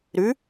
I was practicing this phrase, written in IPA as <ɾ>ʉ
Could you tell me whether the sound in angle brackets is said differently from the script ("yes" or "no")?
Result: no